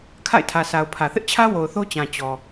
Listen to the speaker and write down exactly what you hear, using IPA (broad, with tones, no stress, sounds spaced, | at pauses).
kʰ a̰˦˨ ɪ̯ tʰ ä˨ s a˨ ʊ̯ pʰ ä˨ θ ɪ˦ ʔ t͡ɕʰ ä˦ w o˨ ʊ̯ θ o˦ t͡ɕ ã˨ t͡ɕ ɔ˨